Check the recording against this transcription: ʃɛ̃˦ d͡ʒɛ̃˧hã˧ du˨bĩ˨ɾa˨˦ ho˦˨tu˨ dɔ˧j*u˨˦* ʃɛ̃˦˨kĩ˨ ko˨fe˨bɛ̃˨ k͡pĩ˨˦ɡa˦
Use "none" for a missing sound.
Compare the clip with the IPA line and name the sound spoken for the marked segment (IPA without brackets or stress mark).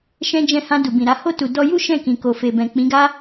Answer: u˦